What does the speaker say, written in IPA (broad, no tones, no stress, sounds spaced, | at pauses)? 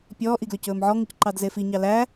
pʲ ɔː ʔ i ɡ l ø c ɵː m ʕ ɔ ŋ u c ǃ ɑ d z e f i ɲ ɑ l æ